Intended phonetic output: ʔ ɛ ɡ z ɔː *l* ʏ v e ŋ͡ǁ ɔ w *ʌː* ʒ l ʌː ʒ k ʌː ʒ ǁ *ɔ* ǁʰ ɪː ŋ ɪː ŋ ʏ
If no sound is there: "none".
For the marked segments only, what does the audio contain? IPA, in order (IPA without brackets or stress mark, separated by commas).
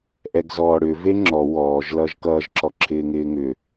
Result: ɽ, ɔː, ɔ